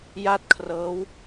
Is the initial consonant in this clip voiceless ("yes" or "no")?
no